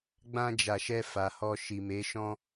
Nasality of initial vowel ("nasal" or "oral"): nasal